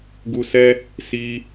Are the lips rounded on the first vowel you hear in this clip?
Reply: yes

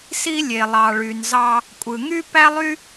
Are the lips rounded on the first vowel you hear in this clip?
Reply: no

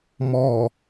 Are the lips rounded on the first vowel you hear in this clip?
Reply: yes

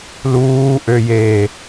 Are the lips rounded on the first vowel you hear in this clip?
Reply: yes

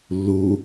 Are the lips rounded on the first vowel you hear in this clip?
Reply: yes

